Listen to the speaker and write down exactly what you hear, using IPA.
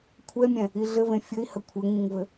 kʷʰ ɛ mʲ ɛ̃ | i ɮ ɘ v ẽ fʲ ɘ i̯ h ə kʷʰ ɘ ŋ ĩ ŋ v ɘ

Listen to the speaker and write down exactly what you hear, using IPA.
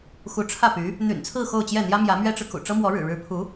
x u˧˥ ʈ͡ʂʰ ä˥˩ p y˧˥ | n̪ y̰˨˩ n t͡sʰ ɹ̩˥˧ x o˥˧ ʊ̯ t͡ɕ j ɛ˥˩ n̪ j ä˥ m j ä˧˥ m ɥ ɛ˥ ʈ͡ʂ ɻ̩˨ k ṵ˨˩ ʈ͡ʂ ɤ˥ m w ɔ˧˥ ɻ ɻ̩˨˩ ɻ ɻ̩˧˥ pʰ u˧˥

